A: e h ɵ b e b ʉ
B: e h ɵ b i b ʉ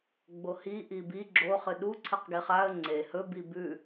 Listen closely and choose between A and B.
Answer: B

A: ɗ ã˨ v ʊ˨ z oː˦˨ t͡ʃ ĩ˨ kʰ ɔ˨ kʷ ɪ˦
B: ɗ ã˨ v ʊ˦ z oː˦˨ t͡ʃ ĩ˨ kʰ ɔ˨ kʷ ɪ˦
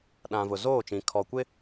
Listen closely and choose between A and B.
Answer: A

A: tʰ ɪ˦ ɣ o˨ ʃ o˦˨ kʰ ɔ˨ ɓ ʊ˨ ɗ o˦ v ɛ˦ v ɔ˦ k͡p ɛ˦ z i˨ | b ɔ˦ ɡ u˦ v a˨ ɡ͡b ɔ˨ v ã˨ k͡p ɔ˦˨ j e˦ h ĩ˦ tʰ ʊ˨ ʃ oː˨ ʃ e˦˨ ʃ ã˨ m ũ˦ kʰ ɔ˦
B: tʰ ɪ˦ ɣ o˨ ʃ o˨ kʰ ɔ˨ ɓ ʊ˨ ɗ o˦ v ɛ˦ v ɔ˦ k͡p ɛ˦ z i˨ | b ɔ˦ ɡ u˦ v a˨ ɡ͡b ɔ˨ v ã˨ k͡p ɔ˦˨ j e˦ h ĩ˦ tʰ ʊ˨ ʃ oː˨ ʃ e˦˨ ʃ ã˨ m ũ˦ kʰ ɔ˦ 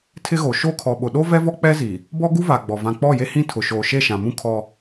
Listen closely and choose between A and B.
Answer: A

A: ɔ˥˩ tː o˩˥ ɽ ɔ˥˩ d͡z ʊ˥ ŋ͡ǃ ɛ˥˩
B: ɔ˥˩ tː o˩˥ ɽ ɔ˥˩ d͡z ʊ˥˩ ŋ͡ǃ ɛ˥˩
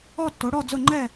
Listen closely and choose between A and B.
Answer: B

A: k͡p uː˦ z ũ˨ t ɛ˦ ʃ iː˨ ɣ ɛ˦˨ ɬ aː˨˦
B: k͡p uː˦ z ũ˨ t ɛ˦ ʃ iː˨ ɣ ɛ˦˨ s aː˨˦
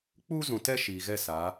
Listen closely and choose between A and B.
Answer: B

